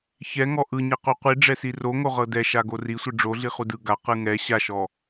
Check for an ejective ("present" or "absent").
absent